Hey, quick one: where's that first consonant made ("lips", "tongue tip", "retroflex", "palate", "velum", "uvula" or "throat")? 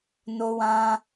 tongue tip